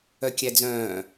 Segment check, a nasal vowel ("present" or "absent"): present